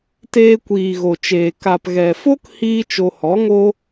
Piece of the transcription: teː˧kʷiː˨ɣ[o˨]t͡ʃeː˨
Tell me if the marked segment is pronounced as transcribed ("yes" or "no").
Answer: yes